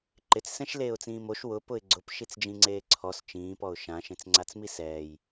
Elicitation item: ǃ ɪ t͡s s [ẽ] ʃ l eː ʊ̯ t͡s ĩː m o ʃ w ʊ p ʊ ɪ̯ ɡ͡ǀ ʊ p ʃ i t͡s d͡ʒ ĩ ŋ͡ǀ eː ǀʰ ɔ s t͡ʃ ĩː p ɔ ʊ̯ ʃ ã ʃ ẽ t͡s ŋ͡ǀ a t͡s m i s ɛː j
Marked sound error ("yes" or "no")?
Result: yes